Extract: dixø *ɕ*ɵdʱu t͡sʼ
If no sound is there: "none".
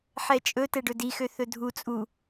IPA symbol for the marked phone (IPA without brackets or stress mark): θ